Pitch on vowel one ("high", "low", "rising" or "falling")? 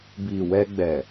low